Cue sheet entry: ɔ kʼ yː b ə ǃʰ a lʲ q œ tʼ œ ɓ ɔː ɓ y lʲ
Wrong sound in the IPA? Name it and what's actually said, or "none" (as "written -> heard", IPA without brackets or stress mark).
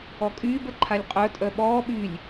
q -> qʼ